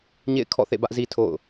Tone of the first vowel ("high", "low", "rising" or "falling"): falling